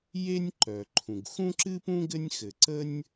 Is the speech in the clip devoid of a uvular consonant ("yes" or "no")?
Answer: yes